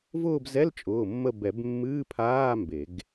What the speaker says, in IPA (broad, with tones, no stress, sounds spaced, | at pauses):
v ʊː˦˨ b z ɛ˧˥˧ l t͡ʃʼ ʊː˩˧˩ mː ə˦˨ b ɛ˨˩˦ b mː ɨː˧˥˧ pʰ aː˧˥˧ m b e˨˩˦ ɡ